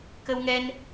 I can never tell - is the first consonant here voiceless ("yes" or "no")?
yes